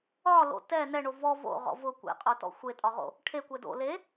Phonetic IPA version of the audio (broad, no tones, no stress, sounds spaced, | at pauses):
ɒ l o̰ t ɛ n ɛ ɳ o v ɔ v o̰ ʁ ɔ̰ v ʊ kʷ ḛ qʼ o t ɔ̰ xʷ e tʼ ɒ ʁ o̰ | ʈʰ e kʷ ɛ d o̰ l e